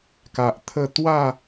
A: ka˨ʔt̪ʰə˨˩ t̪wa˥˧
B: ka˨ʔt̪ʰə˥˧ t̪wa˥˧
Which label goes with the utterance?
B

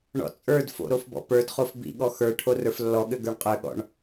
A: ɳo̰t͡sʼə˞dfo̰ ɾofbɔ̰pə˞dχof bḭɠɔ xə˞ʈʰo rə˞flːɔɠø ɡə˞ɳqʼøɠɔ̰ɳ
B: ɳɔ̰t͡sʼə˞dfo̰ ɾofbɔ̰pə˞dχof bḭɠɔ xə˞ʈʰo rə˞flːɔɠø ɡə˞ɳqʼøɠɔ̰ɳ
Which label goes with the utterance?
B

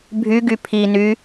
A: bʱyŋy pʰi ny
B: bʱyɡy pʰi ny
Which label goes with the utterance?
B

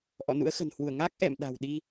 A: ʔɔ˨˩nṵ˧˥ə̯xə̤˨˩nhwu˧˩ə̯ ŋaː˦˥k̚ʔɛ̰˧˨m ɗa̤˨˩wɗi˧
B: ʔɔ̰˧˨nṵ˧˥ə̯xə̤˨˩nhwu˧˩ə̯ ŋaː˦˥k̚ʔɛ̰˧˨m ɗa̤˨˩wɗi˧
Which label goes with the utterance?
B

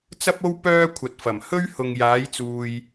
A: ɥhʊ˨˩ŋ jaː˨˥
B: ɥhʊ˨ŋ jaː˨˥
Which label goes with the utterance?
B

